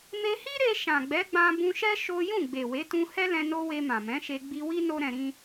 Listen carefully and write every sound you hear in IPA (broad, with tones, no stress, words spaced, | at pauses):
me˧hi˦ɾe˧ ʃã˨ɡ͡bɛ˨˦ɡ͡bã˧ bũ˧ʃɛ˦ ʃo˦ jũ˦˨ɡ͡be˨we˨˦tũ˧ hɛ˦lɛ̃˧ no˦ we˧mã˨mɛ̃˨˦ʃe˧ ɡ͡bi˧wi˦ no˦ɾɛ̃˧ɾĩ˦